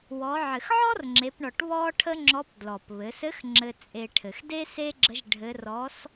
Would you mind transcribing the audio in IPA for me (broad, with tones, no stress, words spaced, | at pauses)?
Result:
wɔ˩˧ʕɘ˩x ʕɔ˥rŋ͡ǁe˩˧pɳɔ˩ʈ βɔ˥ʈʰə˥ŋ͡ǁɔ˧˥p dlɔ˩pβɘ˩˧sɘ˧˥x ŋ͡ǁɘ˧t͡sʼe˧ʈʰɘ˩x de˥se˥ɡ͡ǁə˧˥ʒ ɖʱɘ˧˥ rɔ˧˥s